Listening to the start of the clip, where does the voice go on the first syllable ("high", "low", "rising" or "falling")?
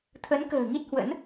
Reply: rising